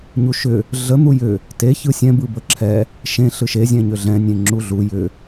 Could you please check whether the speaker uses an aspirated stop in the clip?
yes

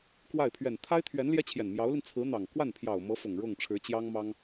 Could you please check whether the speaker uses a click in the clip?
no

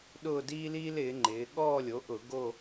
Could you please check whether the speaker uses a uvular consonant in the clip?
no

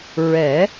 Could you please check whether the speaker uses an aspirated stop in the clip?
no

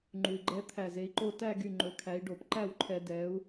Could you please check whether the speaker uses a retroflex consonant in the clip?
yes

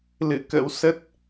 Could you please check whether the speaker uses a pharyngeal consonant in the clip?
no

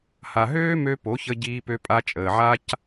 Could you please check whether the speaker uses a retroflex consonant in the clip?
no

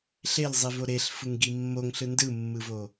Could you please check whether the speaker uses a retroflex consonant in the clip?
no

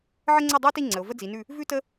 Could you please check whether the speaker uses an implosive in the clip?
no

